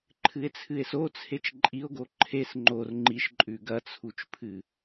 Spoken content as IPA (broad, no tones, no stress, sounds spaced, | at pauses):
ǃʰ ɨ e̯ t͡sʰ ɨ e̯ s o t͡sʰ e t͡ʃ ǃʼ i o̯ ɡ o ǃʰ e s ŋ͡ǃ o r ŋ͡ǃ i ʃ ǃʼ ʉ ɡ ɐ t͡sʰ u t͡ʃ pʰ ɨ